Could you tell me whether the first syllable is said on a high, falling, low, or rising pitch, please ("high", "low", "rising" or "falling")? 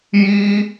high